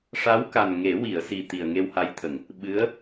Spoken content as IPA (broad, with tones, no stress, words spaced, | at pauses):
ʂa˧˥wka˨˩n ŋe˨˩˦wi˨˩˨ə̯ si˨˩ t̪i˨˩ə̯ŋe˧wha˧˥jt̪ʰə˨˩˨ŋ | ɓɨ˧˥ə̯